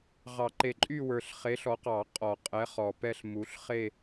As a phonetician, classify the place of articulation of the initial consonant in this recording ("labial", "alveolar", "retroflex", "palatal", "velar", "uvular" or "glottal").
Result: uvular